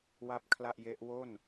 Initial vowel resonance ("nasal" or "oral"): oral